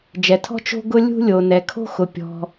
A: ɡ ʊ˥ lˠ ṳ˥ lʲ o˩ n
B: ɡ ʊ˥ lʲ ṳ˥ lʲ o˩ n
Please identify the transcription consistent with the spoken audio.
B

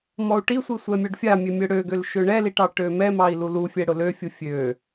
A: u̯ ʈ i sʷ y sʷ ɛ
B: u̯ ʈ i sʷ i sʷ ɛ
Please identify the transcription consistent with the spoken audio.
B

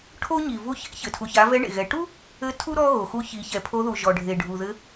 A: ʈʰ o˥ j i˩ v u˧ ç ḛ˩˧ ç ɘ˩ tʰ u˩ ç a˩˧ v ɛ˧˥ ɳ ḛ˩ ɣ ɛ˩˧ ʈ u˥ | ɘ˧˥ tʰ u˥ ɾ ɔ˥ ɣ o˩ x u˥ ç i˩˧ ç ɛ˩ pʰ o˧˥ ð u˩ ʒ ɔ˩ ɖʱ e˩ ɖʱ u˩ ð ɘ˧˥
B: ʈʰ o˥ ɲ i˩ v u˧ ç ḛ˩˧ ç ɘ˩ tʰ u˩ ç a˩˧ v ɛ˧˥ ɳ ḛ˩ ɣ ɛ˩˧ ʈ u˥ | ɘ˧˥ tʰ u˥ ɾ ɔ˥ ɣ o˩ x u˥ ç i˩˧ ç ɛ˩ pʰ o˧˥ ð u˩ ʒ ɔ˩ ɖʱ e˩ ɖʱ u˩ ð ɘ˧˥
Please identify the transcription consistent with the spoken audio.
B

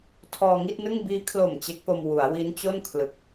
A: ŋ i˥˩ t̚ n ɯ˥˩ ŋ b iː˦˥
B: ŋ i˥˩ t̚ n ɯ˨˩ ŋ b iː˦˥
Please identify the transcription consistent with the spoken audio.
A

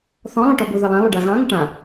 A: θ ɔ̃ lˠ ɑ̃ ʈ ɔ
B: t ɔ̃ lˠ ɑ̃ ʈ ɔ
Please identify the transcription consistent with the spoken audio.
A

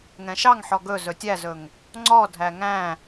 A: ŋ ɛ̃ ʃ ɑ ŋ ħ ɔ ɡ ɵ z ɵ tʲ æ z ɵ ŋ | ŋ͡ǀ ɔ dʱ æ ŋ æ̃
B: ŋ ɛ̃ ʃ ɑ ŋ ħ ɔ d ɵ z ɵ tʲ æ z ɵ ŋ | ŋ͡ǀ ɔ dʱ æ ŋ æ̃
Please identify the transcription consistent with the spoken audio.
A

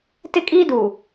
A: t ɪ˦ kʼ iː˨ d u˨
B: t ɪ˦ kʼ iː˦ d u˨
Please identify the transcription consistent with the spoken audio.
B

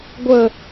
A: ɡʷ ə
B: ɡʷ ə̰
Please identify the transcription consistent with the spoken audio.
A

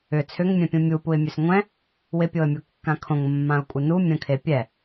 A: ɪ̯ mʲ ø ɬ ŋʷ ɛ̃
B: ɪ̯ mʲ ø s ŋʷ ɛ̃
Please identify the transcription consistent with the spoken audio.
B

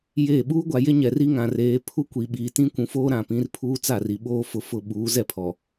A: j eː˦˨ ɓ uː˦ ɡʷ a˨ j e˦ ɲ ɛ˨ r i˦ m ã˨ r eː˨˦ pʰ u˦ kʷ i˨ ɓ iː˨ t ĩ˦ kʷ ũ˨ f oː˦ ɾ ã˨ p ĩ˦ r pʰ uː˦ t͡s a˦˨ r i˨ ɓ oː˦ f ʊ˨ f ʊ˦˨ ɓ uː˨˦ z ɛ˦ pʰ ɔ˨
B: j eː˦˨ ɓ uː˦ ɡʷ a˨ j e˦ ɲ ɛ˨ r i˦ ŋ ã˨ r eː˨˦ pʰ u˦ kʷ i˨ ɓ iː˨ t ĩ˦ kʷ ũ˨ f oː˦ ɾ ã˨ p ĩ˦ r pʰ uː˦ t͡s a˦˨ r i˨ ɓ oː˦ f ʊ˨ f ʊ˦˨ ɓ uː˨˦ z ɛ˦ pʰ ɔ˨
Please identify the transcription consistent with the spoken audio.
B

